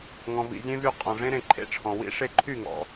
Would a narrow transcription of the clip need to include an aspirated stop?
yes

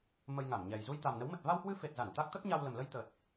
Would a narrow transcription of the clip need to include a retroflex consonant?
no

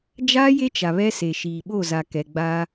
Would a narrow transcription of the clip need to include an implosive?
yes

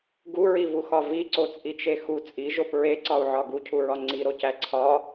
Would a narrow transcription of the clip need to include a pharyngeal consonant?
yes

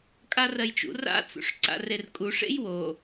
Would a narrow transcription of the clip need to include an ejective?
yes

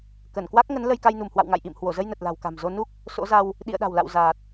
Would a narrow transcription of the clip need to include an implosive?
yes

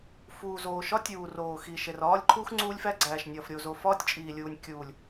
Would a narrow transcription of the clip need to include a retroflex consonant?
no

